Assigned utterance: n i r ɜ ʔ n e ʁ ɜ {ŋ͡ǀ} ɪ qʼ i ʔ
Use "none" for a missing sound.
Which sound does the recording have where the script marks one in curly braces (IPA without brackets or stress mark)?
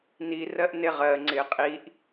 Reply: ŋ͡ǀ